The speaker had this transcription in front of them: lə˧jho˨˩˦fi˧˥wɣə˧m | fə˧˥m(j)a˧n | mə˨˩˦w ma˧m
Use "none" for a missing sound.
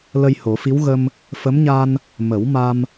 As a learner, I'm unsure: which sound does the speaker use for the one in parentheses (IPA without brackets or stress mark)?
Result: ɲ